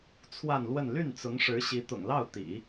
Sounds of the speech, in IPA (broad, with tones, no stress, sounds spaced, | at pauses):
t͡sʰ w a˥˧ n l w ə˥˧ n l y˥˩ n t͡s ʊ˧˥ ŋ ʂ ɻ̩˧˥ ɕ i˧˥ t̪ ʊ̰˨˩ ŋ l ɑ˥˩ ʊ̯ t̪ ḭ˨˩˦